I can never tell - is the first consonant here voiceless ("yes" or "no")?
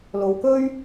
no